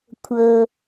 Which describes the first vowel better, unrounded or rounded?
unrounded